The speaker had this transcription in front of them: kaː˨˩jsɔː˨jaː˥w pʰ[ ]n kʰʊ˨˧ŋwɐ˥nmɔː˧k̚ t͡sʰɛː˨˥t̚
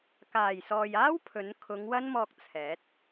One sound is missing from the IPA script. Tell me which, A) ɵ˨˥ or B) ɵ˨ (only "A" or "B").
A